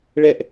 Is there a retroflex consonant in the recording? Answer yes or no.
yes